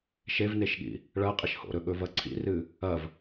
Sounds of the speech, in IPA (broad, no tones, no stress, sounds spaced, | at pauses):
ʃ e v n e ʃ ɠ ḭ | ɭ ɐ qʼ i ʃ h o̰ ɾ ɵ ɠ ɵ v ɐ ǀʰ ḭ r ɨ | ɐ v